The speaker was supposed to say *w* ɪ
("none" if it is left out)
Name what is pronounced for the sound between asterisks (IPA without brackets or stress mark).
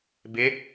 b